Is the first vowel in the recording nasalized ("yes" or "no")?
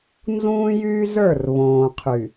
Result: yes